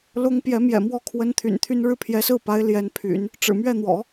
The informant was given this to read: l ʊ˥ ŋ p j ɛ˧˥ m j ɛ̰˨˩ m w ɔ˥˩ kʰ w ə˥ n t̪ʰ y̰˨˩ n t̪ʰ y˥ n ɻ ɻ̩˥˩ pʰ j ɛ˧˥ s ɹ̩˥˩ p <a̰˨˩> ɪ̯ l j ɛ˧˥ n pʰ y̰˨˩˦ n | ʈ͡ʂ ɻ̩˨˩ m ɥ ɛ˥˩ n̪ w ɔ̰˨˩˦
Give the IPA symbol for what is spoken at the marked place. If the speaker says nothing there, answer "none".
a˧˥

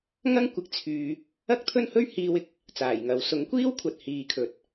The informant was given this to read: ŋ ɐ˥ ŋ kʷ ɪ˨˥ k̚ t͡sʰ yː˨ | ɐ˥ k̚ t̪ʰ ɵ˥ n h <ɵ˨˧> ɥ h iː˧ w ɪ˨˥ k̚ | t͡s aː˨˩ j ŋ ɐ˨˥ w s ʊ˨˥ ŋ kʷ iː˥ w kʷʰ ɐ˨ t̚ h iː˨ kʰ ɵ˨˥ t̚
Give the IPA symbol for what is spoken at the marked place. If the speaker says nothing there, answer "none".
ɵ˥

